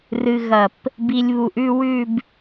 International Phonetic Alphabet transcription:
r ɨ˧ ɣ ɐ˧˩ p | b i˧ lʲ β u˧ ʔ ʉ˥˧ w ʉ˥˧ b

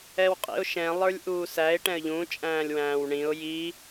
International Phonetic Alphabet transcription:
ɛ w qʼ ḭ ʊ̯ ʃ ɛ̃ lˠ ə˞ lʲ ʔ uː s æ ɪ̯ ʈ ɛ̃ ə̯ ʎ ũ t͡ʃʼ æ̃ː lʲ w æ̃ː w ɳ ĩ ʊ̯ j i

